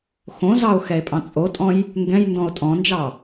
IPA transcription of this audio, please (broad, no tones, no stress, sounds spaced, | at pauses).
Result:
x õ z ɑ o̯ x ɛ e̯ pʼ ɑ̃ t͡sʼ o tʼ ɔ̃ j | ŋ ɡ ɛ̃ j n d ɔ̃ o̯ tʼ ɔ̃ n d͡ʒ ɑ